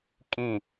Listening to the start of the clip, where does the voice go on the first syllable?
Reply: falling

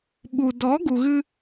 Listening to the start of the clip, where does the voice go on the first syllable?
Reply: low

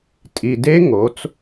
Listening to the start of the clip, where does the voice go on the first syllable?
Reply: low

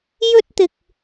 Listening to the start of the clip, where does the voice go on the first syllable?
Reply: high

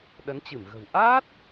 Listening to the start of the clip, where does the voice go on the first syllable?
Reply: rising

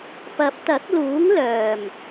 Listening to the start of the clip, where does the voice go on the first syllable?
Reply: rising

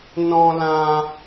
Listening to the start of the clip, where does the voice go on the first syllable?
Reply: high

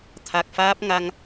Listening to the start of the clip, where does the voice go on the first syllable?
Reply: low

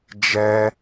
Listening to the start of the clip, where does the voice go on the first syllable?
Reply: high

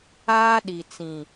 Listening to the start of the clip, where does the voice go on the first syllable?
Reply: high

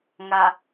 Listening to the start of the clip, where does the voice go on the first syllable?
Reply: low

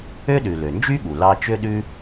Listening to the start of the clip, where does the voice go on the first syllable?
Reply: high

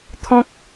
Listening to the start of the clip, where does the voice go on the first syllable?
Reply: high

